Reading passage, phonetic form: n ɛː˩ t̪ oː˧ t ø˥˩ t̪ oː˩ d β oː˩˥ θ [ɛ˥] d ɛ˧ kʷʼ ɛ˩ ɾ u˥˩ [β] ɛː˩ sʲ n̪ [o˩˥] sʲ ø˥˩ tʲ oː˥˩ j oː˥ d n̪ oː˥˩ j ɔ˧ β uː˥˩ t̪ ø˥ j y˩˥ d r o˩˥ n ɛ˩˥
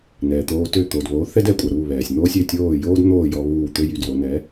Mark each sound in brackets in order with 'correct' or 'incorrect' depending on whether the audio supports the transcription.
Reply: correct, correct, incorrect: o˥

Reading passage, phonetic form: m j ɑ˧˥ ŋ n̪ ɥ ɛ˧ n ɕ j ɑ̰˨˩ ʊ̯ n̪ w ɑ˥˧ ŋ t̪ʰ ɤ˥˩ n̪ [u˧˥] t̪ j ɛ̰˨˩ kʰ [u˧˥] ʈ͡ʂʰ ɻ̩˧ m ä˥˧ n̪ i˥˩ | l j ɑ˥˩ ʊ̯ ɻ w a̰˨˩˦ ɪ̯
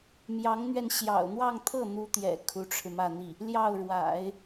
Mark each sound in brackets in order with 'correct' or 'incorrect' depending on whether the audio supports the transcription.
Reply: correct, correct

